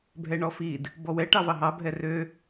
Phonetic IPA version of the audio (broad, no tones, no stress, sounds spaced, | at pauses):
bʱ ɛ ɳ ɔ f i d | b ɔ w ɛ ʈ ɑ v ɑ ɦ ɑ bʱ ɛ r ø